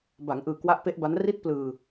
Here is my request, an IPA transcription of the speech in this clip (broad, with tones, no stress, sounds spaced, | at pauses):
b a˩˦ ŋ ʔ ɯː˨˩ k w a˦˥ ʔ p e˦˥ ʔ b a˦˥ n r i˥˩ t̚ p l ɯː˧